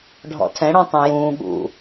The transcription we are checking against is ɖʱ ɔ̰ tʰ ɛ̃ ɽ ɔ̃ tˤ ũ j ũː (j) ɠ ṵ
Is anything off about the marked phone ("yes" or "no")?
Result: yes